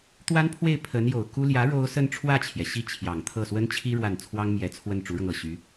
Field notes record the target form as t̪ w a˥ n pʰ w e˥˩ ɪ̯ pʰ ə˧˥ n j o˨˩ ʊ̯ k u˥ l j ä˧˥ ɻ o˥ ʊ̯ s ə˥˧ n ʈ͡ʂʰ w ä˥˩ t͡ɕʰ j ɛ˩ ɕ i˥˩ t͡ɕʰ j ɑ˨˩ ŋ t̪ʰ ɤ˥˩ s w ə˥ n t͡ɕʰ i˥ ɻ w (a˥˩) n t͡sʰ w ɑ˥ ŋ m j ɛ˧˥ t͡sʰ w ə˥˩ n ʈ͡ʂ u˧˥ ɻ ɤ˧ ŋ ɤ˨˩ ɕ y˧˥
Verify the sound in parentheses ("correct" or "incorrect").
correct